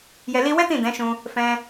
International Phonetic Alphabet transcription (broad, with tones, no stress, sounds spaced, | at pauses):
j ɛ˧ l i˦ w ɛ˦ t ĩ˦˨ d ɛ̃˨˦ ʃ ũ˧ | f ɛ̃˧